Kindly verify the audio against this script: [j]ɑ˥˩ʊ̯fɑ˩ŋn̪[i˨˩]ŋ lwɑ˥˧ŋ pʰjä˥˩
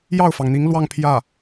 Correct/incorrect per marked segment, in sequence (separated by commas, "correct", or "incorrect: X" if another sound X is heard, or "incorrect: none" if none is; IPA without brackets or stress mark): correct, incorrect: i˧˥